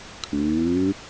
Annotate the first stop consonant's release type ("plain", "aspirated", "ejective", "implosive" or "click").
aspirated